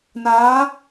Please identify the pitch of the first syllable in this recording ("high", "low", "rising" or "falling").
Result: rising